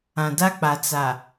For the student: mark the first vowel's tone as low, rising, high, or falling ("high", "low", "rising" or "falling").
low